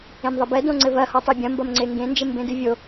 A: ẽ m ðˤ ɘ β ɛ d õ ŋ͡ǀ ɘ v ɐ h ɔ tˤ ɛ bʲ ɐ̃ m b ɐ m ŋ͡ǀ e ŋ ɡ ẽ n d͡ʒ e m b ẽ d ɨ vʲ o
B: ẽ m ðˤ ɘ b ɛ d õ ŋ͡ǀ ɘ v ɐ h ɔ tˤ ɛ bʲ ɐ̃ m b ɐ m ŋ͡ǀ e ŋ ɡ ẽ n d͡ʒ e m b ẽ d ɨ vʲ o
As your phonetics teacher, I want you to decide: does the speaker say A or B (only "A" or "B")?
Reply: B